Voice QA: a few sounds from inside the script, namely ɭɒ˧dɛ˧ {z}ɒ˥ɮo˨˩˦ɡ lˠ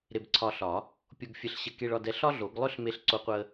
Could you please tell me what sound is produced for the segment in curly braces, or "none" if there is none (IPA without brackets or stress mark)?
ɬ